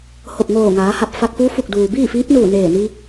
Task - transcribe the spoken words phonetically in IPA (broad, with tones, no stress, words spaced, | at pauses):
ho˧˩p̚ŋoː˧˩ŋaː˩˧ha˧˩p̚ fa˧k̚fuː˧˥ fu˧˩k̚duː˩ biː˥˨fiː˧˥p̚nuː˧˩ neː˧˩ni˧